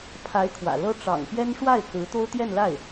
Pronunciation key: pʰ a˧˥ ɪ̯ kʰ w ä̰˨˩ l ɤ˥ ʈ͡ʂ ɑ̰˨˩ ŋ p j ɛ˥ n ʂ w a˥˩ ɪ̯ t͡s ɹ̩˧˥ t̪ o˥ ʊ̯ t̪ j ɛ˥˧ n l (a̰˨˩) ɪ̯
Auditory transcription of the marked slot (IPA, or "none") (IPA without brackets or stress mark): a˥˩